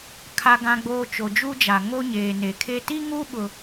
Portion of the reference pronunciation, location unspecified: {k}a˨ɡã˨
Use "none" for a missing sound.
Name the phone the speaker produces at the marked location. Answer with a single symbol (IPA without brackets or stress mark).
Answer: kʰ